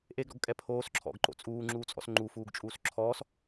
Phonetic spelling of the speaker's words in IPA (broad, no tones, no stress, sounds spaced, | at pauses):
ʔ e ɡ ɾ ɔ̰ ɡ kʼ ɛ pʰ oː s ǁʰ ɔ̰ ɡ ǃ o̰ t͡sʼ uː ŋ͡ǁ uː t͡sʼ ɔ̰ s ŋ͡ǃ u f uː ɡ t͡ʃʼ uː s ǁʰ ɔː s